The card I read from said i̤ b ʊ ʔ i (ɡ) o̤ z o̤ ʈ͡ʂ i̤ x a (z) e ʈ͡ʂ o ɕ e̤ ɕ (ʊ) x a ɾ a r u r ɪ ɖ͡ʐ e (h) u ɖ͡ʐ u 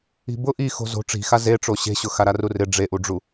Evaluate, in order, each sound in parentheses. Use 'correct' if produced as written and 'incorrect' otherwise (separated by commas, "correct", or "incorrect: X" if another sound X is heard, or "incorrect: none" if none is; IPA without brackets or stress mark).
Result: incorrect: x, correct, correct, incorrect: ʔ